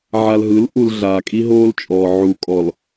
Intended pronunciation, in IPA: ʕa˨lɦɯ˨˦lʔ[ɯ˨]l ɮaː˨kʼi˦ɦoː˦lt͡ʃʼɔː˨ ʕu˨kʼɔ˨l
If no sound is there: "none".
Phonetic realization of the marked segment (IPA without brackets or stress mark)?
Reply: u˨